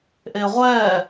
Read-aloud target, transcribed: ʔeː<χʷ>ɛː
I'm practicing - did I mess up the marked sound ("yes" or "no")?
yes